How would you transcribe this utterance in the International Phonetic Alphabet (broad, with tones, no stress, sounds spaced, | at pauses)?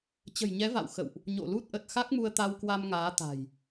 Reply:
t͡ɕ ə̤˨˩ j ɲ ɛ˨˦ v a̰˧˨ w x ə̰˧˨ w ʔ | ɲ o̰˧˨ l u˦˥ t̚ ʔ ə˨˩ t̚ x a˦˥ k̚ m u˧ ə̯ t̪ a˧ w k w a˧ m ŋ aː˨˦ t̪ a̤˨˩ j